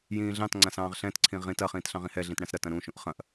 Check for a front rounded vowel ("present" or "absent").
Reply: absent